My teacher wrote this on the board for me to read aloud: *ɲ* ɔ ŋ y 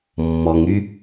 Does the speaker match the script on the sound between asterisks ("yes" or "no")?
no